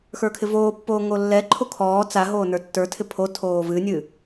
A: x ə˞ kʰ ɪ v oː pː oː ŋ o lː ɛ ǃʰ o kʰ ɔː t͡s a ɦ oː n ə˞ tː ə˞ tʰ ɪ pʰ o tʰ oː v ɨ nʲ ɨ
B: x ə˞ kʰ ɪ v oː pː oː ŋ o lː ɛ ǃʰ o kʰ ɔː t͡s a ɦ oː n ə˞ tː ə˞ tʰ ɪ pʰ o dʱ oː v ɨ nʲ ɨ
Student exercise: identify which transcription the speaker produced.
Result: A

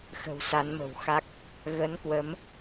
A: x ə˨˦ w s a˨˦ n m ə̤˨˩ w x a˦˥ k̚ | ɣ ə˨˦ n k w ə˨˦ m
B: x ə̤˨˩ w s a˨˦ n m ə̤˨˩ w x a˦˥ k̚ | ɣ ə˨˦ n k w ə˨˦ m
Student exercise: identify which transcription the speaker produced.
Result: B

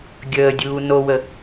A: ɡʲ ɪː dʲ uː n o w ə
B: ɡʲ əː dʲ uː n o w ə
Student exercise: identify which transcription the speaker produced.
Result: B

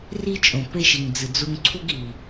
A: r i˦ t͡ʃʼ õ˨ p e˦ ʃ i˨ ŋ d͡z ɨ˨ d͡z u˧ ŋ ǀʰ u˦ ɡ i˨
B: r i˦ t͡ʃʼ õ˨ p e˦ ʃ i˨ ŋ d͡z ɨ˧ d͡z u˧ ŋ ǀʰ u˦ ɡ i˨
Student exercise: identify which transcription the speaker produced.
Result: A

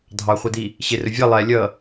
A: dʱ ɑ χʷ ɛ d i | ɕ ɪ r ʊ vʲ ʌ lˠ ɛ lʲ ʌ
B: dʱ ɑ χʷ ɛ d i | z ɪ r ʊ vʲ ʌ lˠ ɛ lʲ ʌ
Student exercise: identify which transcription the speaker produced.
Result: A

